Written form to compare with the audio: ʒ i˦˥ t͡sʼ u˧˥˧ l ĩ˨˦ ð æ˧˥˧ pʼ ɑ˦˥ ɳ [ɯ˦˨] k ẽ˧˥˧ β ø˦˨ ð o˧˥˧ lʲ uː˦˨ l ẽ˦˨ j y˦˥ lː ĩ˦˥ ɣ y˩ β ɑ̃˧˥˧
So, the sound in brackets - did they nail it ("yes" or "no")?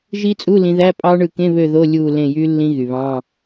yes